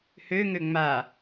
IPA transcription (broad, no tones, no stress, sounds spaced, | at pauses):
h ø ŋ ø ŋ͡m a